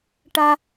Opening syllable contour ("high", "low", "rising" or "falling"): low